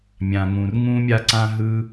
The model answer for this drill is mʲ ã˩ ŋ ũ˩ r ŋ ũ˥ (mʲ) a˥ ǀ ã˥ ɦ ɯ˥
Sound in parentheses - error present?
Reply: no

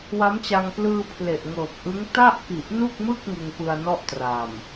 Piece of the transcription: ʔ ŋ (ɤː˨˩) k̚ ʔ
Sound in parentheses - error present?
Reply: no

